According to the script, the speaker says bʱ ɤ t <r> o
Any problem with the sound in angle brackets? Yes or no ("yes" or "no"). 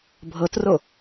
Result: no